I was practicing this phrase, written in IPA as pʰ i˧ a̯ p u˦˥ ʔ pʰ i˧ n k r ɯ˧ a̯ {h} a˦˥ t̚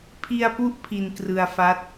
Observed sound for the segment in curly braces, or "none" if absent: f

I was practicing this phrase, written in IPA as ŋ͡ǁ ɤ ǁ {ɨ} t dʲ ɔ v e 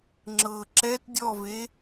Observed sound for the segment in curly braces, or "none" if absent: ɛ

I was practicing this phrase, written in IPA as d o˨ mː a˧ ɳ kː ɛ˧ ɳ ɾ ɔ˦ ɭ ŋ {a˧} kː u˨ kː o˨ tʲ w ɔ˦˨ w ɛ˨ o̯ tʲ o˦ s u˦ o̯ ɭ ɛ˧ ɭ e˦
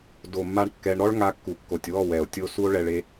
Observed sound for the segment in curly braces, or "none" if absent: a˧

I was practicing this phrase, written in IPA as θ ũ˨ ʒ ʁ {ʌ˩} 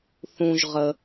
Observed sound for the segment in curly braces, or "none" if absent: ə˩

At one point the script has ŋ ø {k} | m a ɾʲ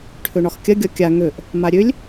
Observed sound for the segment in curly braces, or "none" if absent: ʔ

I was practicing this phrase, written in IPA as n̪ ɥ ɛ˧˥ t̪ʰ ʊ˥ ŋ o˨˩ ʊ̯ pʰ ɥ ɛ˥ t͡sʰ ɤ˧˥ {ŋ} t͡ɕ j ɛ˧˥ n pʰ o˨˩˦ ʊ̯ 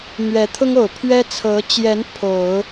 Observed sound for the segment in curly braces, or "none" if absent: none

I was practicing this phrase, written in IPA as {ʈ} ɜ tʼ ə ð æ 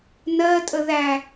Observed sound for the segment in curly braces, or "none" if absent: n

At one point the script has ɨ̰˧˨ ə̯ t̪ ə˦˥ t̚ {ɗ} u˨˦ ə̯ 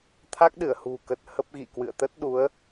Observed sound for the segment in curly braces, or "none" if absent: ɗ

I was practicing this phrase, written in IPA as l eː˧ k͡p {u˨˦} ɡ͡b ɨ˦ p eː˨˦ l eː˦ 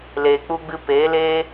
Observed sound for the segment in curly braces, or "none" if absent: u˦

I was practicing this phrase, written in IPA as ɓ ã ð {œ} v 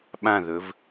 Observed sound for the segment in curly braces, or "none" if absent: ɵ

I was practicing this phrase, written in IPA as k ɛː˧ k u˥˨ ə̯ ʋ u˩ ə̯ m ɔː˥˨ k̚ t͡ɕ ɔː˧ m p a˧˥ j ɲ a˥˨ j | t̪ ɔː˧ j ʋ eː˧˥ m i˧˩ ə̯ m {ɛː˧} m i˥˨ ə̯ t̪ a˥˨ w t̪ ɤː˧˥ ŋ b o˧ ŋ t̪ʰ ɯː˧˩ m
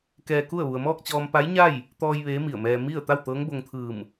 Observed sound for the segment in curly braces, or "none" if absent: ɛː˧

